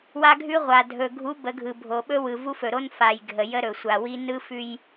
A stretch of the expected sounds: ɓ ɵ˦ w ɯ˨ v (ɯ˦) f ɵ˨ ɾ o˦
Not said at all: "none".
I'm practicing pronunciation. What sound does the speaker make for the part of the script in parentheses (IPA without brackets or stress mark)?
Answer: u˦